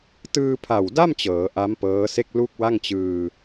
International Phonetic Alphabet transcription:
t ɯː˧ pʰ a˨˩ w d a˥˩ m t͡ɕ ɤː˩˦ ʔ a˦˥ m p ɤː˦˥ s e˥˩ k̚ l u˥˩ k̚ w a˥˩ ŋ t͡ɕ ɯː˧

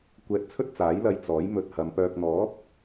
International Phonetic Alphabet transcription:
kʷ ɛː˧ t̚ t͡sʰ ɵ˥ t̚ t͡s aː˨˥ j l ɐ˧ j t͡s ɔː˨˥ j m ɵ˨ t̚ h ɐ˨˧ m p œː˧ k̚ n̪ ɔː˨˥ p̚

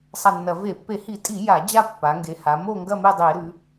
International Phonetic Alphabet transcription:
sˤ a˦˨ nː ɐ˧˩˧ v e˧˩˧ pː e˧˩˧ h i˧˩˧ tʼ i˧˩˧ j a˧˩˧ d͡ʑ a˦˨ pː a˩˧ ŋ ɡ e˩˧ h a˩˧ m o˦˨ ŋ ɡ ɐ˦˨ m e˦˨ dˤ e˧˩˧ ɾ ʉ˩˧

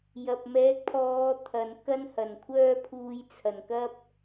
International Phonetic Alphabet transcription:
j ɐ˨ p̚ m ɛː˨˥ k̚ pʰ ɔː˨˧ t̪ʰ ɐ˨ n k ɐ˥ n h ɐ˨˩ n kʷʰ œː˥ pʰ uː˧ j t͡sʰ ɐ˨˩ n k ɐ˥ p̚

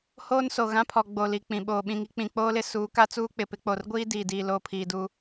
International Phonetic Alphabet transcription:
h oː˦ n s o˨ ɣ ã˦ pʰ ɔ˨ ɡ͡b o˨ l i˨ k͡p ĩ˨ ɓ oː˨ ɓ ĩ˨ ŋ i˦ k͡p ĩ˨ k͡p oː˦ l ɪ˦ s uː˨˦ k a˦ t͡s uː˦ k͡p ɪ˨ p ɪ˨˦ k͡p o˨ r ɡʷ iː˦ d iː˨ d i˨ l oː˦ pʰ iː˨ d uː˦

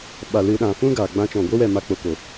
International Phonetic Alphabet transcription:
ɓ a˨ l ɨ˨ ɗ ã˨ f ũ˦ ɡ aː˨ ɡ͡b ã˧ t͡ʃ ɔ̃˨ ɡʷ e˦ w ɛ˦˨ m a˧ k͡p o˨ k o˨

